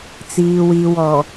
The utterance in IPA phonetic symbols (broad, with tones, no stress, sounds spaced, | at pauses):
t͡s iː˨ w i˨ w ɔ˨